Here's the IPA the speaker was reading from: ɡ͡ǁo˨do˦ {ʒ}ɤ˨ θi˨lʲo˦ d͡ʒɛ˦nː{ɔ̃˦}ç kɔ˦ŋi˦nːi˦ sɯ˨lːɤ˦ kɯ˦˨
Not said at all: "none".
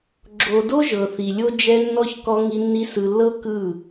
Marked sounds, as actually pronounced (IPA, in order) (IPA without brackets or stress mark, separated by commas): ʒ, ɔ˦